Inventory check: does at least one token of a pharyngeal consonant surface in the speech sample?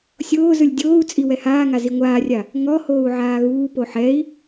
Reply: yes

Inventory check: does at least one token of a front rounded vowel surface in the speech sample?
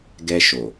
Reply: no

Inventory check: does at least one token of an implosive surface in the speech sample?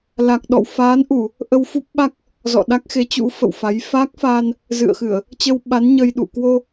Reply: yes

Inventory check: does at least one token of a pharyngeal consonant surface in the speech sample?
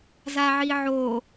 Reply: yes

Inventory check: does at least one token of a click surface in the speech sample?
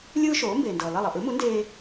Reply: no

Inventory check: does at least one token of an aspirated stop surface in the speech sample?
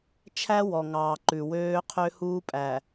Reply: yes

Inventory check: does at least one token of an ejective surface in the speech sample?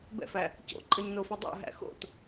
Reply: yes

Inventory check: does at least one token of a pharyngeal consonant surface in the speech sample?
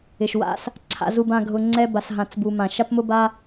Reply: no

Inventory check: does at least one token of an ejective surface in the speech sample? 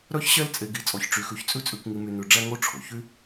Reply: yes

